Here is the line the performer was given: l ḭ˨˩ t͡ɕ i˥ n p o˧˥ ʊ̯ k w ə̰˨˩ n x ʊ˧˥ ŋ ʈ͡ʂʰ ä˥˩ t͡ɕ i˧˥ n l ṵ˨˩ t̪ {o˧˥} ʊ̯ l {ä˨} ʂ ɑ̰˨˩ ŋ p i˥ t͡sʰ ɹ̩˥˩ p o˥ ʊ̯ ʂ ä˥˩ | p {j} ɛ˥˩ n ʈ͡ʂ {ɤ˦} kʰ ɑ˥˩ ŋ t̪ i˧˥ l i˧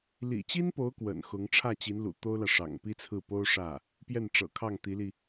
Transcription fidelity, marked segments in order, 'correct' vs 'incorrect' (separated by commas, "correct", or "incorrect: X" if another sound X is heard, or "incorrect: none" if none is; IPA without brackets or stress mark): incorrect: o˥, correct, correct, incorrect: ɤ̰˨˩